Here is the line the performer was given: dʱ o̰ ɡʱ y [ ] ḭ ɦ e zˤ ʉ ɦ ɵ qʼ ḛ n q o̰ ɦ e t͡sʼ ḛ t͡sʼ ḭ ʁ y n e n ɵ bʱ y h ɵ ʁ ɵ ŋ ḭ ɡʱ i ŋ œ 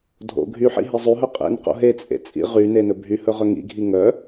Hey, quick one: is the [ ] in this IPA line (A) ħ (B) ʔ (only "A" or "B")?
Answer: A